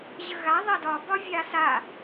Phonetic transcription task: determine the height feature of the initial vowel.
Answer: mid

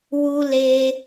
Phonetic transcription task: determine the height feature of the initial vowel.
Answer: high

